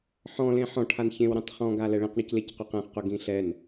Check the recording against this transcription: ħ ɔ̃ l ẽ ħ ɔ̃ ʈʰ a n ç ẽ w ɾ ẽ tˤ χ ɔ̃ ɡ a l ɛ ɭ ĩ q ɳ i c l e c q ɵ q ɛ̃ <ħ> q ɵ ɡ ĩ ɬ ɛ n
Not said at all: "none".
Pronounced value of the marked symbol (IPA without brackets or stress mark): χ